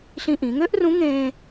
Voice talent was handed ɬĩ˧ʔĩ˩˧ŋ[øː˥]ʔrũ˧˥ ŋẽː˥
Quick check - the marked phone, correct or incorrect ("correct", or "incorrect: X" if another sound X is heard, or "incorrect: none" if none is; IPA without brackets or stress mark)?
incorrect: ø˥